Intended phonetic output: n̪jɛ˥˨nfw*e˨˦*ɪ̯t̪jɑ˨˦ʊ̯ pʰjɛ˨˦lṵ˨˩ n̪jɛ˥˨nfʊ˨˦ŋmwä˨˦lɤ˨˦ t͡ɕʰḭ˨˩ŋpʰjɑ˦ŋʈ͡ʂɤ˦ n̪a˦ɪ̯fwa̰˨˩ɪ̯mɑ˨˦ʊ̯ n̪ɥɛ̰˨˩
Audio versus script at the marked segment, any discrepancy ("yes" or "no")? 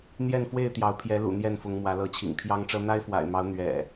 yes